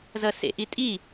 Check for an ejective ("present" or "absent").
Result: present